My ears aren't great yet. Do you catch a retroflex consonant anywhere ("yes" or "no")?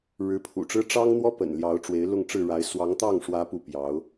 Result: yes